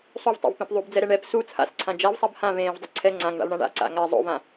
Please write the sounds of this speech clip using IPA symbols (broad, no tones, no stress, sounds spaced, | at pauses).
sˤ u v tˤ o̰ v p ẽ p ðˤ u b d͡z ɛ ɾ ɛ ɳ ɛ p s u t͡sʰ a̰ s ǀʰ ã d͡ʒ a v sˤ a b h ã v ẽː v dˤ u ǀʰ ɛ ŋ͡ǀ ã ŋ ɳ a̰ v ɳ ã ɳ a̰ ǀ a̰ ŋ a zˤ o̰ v ã